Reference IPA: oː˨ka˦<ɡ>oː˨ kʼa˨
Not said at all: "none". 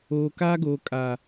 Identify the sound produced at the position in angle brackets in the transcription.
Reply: ɡ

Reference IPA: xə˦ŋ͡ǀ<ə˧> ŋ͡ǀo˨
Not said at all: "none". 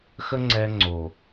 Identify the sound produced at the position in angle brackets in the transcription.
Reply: ɛ˧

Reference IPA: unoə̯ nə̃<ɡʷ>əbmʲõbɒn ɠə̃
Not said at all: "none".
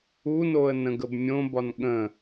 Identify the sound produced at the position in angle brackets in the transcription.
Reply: ɡ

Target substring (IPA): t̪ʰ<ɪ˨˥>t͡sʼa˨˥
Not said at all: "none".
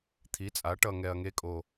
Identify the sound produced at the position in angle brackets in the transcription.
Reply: i˨˥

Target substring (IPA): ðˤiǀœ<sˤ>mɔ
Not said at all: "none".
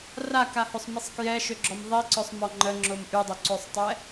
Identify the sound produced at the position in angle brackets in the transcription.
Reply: sˤ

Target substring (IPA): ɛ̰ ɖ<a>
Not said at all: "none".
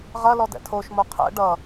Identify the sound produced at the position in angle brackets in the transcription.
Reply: ʌ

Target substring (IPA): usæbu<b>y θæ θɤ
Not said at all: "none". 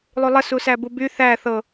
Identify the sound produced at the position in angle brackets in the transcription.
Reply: b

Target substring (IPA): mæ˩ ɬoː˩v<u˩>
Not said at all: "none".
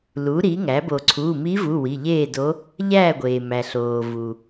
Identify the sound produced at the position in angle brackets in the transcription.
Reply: u˩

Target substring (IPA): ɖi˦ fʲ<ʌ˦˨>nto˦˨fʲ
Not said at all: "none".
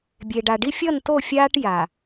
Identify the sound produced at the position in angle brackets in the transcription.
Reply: ʌ˦˨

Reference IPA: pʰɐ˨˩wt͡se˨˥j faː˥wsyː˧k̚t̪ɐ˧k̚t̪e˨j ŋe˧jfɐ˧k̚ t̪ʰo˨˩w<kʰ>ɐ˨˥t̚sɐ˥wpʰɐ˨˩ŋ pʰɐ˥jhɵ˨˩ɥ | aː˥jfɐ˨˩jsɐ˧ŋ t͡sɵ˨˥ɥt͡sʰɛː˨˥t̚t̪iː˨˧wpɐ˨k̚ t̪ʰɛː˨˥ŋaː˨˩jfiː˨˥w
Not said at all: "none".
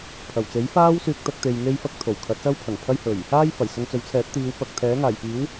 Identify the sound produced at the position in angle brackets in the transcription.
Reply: kʰ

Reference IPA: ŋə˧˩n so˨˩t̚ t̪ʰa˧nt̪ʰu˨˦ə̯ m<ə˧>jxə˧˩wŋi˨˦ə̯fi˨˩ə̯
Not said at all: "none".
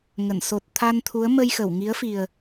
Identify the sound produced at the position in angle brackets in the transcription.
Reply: ə˧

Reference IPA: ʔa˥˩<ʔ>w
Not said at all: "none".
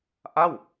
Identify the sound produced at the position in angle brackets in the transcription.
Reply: none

